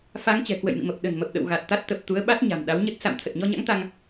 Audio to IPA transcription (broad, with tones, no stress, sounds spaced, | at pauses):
f a˨˦ ŋ t͡ɕ ɛ̤˨˩ k w ə̰˧˨ j m ḭ˧˨ m ə˨˩ p̚ ɗ ə̤˨˩ n m ə˨˩ p̚ ɗ ə̰˧˨ w ɣ a˨˩ t̚ t̪ a˦˥ t̚ t̪ ə˨˩ p̚ t̪ u˨˦ ə̯ ɓ a˦˥ t̚ ɲ a̤˨˩ m ɗ a˨˦ w ɲ ə˦˥ t̚ s a̰˧˨ m t̪ʰ ə˨˩ t̚ ɲ ɔ˧ ɲ a̰˧˥ ŋ t̪ a˧ ŋ